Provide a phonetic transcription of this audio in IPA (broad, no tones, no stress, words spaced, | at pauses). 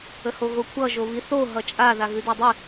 əhoɣokʷʰʌ ʒoβiθo ɦʌt͡ʃʼa ðaɣʉdadˤʉ